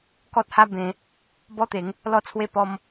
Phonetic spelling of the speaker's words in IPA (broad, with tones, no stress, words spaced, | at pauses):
kɔ˦t̚ha˦ bẽ˧ | bɔ˦t̪e˨˦ŋ | lɔ˦t͡sʰwe˥˧pɔ˦m